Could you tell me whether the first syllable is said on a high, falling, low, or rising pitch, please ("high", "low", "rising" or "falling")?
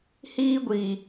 high